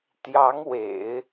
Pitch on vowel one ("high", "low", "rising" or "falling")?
rising